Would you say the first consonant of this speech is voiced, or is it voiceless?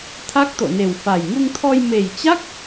voiceless